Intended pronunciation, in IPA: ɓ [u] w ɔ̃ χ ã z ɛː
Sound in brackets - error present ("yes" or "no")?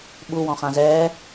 no